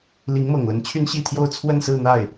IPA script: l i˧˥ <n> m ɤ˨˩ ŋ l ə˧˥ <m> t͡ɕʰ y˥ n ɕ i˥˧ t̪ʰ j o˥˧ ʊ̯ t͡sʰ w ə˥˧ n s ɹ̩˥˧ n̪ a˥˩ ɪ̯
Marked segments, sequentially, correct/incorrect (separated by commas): incorrect, incorrect